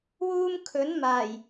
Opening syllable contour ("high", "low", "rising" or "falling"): high